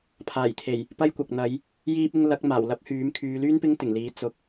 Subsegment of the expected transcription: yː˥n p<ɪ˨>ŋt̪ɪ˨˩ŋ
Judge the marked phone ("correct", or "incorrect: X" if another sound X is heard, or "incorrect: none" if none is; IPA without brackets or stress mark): incorrect: ɪ˥